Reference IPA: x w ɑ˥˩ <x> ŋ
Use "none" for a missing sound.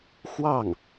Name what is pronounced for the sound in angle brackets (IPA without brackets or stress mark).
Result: none